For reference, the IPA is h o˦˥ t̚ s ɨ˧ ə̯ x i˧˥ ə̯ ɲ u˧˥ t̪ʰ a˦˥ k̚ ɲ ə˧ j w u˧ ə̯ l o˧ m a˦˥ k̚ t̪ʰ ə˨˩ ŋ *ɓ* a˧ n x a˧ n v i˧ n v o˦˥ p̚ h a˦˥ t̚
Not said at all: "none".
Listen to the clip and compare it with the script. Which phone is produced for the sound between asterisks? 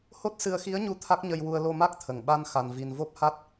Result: ɓ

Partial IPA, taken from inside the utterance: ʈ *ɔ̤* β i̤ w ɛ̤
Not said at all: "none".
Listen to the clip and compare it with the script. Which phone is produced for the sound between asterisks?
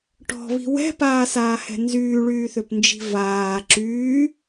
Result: ɔ̤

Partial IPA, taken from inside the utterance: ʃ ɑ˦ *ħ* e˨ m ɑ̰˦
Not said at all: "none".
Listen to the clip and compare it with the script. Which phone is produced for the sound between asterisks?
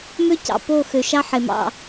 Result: ħ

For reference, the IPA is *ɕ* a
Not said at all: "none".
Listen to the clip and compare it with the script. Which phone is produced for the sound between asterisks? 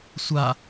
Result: sʷ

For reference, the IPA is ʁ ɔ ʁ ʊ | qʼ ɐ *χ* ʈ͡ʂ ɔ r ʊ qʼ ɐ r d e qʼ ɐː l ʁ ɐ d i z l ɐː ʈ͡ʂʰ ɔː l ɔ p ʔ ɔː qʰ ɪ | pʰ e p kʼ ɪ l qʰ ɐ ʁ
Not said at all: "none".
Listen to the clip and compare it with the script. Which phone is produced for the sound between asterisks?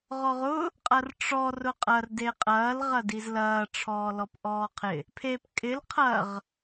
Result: r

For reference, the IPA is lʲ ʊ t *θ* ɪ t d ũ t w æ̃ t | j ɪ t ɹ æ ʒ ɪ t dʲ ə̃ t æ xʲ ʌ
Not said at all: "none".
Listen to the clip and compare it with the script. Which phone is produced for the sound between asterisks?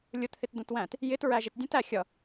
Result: θ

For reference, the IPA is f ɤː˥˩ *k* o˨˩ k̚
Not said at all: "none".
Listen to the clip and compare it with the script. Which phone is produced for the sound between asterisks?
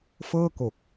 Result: k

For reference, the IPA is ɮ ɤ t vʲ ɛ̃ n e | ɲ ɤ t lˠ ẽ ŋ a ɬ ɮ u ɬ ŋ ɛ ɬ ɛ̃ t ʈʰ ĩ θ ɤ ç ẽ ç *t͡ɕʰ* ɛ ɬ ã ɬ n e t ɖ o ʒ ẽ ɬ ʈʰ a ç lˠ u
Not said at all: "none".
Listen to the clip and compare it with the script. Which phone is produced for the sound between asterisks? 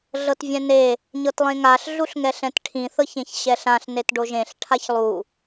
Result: ɕ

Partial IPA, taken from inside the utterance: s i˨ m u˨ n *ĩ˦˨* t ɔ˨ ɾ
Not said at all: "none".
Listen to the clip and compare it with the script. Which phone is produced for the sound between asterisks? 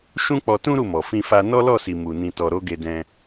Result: ĩ˨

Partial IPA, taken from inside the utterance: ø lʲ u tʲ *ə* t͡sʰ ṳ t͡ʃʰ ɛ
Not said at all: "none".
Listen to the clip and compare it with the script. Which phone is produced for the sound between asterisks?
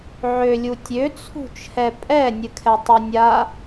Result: ø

